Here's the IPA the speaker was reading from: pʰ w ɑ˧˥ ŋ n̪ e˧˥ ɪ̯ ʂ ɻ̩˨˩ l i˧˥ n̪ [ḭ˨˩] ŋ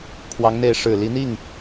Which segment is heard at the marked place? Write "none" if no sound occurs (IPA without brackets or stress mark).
i˥˩